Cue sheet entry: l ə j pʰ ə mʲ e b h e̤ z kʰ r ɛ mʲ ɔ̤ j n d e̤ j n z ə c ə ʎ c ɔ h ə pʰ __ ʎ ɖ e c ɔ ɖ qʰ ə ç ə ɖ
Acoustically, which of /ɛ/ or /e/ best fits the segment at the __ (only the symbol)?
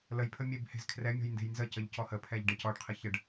ɛ